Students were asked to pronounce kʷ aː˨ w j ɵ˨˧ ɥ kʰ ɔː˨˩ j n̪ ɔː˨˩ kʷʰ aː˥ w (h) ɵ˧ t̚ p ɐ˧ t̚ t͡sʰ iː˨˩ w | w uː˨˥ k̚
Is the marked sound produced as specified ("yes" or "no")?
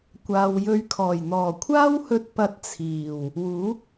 yes